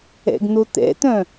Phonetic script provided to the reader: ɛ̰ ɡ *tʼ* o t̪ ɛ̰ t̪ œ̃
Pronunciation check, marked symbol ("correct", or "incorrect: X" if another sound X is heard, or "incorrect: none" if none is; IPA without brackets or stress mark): incorrect: n̪